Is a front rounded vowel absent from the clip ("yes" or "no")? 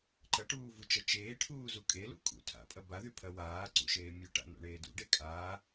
no